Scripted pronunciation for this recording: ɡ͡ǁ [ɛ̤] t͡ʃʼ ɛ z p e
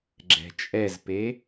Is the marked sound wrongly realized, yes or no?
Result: no